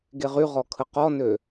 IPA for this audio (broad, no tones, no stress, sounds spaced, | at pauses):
ɡ e ʁ y ʁ ɔ kʰ ə q ɔ n ø